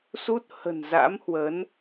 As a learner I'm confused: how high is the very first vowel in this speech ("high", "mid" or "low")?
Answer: high